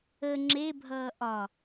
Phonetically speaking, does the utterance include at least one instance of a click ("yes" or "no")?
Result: yes